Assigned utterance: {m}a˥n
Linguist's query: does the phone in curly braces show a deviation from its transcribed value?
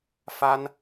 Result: yes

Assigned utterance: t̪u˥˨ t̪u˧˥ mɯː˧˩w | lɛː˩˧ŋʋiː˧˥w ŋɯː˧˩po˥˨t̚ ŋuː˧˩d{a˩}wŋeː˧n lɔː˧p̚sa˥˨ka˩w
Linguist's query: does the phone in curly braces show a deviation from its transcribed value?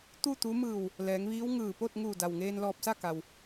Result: no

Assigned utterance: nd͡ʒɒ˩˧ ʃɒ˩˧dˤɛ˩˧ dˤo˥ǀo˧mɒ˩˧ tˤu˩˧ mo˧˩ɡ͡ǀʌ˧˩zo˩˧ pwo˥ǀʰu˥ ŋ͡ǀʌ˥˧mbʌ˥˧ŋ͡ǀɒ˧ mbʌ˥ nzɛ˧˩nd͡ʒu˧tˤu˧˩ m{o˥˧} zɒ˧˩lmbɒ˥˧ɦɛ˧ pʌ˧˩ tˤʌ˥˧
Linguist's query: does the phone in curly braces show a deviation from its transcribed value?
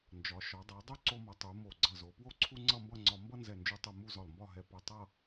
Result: yes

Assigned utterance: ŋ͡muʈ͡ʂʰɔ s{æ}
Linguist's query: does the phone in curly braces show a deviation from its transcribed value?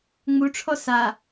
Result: yes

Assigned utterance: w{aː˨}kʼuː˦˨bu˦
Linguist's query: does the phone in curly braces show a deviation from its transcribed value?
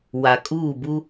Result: yes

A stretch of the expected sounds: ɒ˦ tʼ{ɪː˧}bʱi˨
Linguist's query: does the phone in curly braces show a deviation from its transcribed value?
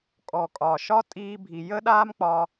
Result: yes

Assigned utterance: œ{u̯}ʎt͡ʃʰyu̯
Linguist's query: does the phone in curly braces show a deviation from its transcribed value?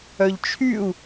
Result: yes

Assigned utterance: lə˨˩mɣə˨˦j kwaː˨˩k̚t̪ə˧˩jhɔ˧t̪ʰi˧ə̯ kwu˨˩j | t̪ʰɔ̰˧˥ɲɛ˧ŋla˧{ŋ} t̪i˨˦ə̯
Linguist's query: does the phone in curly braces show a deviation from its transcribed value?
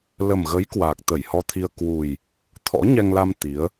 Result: yes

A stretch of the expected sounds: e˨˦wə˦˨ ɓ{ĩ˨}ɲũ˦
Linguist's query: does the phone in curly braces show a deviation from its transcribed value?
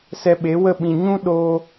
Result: no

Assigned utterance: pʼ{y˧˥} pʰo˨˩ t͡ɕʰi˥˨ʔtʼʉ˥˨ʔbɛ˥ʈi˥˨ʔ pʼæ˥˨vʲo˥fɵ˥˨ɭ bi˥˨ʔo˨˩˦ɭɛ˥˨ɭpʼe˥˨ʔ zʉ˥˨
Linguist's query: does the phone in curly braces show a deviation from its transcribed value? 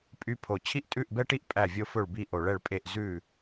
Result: no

